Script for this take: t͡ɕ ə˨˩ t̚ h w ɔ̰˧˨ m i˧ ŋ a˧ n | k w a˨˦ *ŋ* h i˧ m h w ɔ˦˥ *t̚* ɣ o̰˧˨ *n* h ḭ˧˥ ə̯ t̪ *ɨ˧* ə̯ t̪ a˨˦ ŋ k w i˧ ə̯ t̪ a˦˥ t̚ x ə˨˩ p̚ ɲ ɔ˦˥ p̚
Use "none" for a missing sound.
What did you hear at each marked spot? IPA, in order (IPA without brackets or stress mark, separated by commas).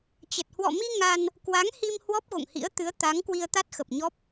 ŋ, p̚, ŋ, ɨ˨˦